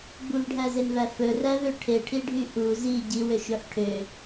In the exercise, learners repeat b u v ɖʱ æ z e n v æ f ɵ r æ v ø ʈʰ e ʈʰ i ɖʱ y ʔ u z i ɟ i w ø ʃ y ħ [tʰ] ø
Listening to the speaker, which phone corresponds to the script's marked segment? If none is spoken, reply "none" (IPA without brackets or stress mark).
ʈʰ